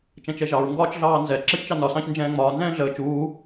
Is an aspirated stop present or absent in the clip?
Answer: absent